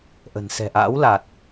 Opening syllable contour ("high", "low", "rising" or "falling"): low